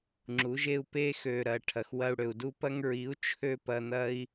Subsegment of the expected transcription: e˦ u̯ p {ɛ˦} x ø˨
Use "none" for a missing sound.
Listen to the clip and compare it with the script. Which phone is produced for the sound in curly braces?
e˦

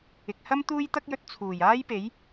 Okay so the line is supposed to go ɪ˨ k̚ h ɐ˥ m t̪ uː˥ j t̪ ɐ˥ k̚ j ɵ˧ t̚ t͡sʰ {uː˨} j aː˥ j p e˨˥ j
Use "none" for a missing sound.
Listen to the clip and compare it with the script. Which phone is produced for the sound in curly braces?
uː˨˩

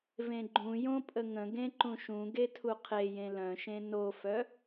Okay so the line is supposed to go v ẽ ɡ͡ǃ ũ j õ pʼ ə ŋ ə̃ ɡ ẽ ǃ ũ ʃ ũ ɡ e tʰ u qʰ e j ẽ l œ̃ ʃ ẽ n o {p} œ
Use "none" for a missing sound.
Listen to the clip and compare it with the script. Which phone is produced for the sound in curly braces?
f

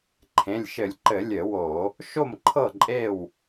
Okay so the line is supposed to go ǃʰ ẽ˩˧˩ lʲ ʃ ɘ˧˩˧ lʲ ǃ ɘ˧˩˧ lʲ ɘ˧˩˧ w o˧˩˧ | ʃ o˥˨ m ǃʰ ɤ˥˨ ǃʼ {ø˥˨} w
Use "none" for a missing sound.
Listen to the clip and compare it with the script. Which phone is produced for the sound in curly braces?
e˥˨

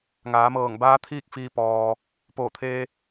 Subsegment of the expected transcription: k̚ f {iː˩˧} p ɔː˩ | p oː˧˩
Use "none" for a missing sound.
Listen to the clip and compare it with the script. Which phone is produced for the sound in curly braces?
iː˧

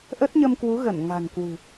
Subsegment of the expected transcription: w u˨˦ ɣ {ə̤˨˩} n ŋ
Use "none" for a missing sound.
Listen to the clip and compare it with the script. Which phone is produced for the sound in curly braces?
ə˧˩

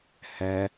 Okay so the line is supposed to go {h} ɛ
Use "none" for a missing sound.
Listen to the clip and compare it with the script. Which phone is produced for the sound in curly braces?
h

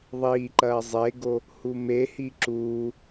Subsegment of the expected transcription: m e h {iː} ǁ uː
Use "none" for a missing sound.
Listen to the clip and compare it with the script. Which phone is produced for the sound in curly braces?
i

